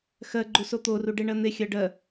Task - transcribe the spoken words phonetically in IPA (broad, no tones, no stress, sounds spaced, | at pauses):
x ɜ ɡ͡ǃ u s o t̪ o r u ɖ e ɳ ɜ n̪ e xʲ ɜ ɖ ɜ